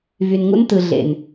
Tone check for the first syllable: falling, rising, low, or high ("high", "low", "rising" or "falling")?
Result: low